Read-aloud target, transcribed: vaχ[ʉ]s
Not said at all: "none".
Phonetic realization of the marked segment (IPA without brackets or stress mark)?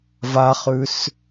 ʉ